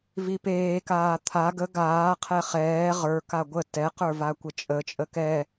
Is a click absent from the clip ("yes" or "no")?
yes